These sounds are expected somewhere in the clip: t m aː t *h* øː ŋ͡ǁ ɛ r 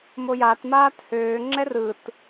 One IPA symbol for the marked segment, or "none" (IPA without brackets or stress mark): h